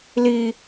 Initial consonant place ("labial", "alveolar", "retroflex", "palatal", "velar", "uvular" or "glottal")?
alveolar